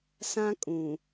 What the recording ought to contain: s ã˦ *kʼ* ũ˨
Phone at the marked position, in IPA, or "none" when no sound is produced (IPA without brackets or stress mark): kʼ